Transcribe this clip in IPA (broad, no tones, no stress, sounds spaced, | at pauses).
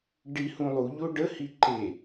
ɖ i h ũ lˠ u ʎ o ɖ ə h i ǃ e